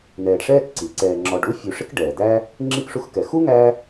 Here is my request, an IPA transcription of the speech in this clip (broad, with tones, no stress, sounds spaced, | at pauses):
n̪ ɛː˨ ɖ ʂ ɛː˥ k ǀ i˩ ǀ ɛː˨ ŋ͡ǁ ɔ˨ ɖ u˥ fʲ u˨ ʂ ɪ˥ k ɖ ɛː˩ d̪ æ˦ | ŋ͡ǁ i˥ k ʂ u˦ x k ɛ˨ x u˥ ŋ æ˦